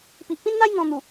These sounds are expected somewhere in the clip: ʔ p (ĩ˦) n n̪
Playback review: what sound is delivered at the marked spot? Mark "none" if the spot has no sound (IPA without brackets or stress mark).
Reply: ĩ˦